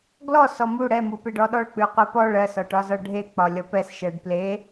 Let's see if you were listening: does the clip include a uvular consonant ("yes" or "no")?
yes